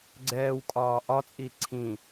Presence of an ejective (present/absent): present